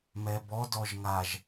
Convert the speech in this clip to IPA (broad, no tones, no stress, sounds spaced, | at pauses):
m ɛ b ɔ d ɔ ʒ ŋ a ʒ